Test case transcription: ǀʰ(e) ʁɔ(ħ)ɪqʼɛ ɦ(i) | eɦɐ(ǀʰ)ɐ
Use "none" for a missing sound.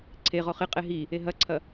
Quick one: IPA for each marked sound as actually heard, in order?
e, χ, i, ǀʰ

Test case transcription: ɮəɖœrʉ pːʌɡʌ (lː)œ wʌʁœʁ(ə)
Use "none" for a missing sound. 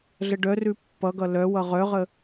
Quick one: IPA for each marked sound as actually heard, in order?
l, ə

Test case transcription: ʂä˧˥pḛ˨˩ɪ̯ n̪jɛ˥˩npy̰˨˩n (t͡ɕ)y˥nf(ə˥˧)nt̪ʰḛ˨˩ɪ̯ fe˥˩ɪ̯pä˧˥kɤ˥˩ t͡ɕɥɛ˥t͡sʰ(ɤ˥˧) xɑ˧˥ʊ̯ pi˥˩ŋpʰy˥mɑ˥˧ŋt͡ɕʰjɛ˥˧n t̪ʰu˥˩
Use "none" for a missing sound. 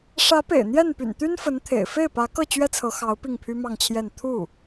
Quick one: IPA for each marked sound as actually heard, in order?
t̪, ə˧˥, ɤ˧˥

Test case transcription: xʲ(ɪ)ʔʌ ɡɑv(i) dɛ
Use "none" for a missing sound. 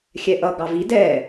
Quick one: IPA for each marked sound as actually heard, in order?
ɛ, i

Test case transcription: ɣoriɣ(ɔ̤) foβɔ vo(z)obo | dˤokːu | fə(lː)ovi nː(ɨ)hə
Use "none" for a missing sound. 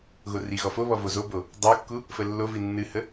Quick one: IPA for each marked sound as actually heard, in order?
ɔ, z, lː, ɨ

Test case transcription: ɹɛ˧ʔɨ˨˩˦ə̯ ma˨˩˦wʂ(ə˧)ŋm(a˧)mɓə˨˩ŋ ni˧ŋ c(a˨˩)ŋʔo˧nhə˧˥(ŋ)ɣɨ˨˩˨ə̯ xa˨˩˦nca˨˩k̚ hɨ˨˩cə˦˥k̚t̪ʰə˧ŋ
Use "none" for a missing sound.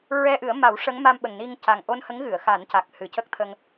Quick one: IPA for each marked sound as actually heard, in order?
ə˧˥, a˧, a˨˩, ŋ

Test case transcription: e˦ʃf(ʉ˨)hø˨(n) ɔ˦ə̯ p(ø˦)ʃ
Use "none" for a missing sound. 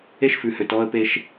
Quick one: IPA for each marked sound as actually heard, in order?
ʉ˨, t, e˦

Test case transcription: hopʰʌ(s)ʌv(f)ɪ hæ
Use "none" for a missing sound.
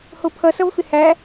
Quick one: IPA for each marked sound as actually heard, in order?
s, f

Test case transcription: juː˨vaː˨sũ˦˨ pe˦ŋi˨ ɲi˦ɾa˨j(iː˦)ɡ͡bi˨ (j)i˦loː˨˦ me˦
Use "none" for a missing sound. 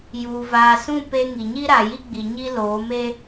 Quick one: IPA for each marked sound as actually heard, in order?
i˦, ɲ

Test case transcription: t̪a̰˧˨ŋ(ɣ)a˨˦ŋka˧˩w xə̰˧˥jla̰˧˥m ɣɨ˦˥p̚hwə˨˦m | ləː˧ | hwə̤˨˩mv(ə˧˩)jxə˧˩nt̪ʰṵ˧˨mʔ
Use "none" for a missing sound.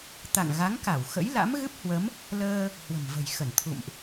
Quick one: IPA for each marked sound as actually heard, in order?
ɣ, ə̤˨˩

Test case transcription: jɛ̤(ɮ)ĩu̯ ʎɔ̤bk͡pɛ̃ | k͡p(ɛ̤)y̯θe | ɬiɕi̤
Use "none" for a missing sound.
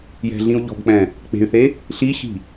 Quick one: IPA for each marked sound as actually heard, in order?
ɮ, e̤

